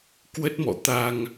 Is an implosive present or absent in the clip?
absent